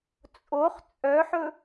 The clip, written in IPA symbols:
t͡sʼ o χ t͡sʼ œ ħ ɵ

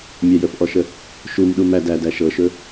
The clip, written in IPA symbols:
mʲ a j ə f ʔ ɔ ʃ ə | ʃ u m ɗ u m æ d æ d æ ʃ ɤ ʃ ɵ

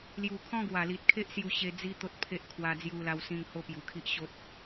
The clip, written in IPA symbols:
l j u˨˩ kʰ ɔ̃˦ ɡ w a˨˩ l i˨ t̚ kʰ e˦ ʔ s j u˥˧ ɕ e˧ d͡z i˦ t̪ o˦ t̚ pʰ e˦ ʔ kʰ w a˧ d͡z j u˧ l a˧ w s ĩ˧ ŋ h o˦ p j u˨˩ kʰ i˦ ʔ ɕ o˦ t̚

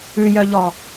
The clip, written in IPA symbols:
ʉ j œ ʎ ɔ

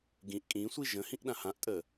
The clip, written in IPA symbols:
ɡ ĩ ʔ kʼ ĩ sʷ i ʒ ə̃ h ĩ ʔ ɗ ã h ã ʔ tʼ ə

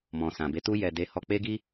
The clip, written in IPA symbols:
m ɔ̃˨ s ã˨ b e˨˦ t u˦ j ɛ˧ d e˧ h ɔ˧ k͡p e˦ ɡ i˦

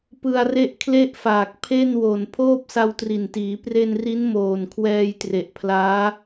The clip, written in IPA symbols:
p ɯ˧ a̯ r e˥˩ ʔ kʰ l e˥˩ ʔ f aː˨˩ k̚ pʰ e˥˩ n w o˨˩ n pʰ oː˥˩ p̚ s a˧ w t r i˨˩ n t iː˩˦ p r e˧ n r i˦˥ n m oː˨˩ n kʰ w ɛː˧ j t r e˨˩ ʔ pʰ l aː˦˥

